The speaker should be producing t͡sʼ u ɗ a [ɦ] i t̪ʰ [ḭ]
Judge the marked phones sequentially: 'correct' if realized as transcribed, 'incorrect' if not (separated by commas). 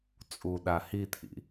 incorrect, correct